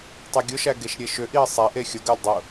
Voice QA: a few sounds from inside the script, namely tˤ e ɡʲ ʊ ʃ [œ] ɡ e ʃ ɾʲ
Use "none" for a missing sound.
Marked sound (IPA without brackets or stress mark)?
æ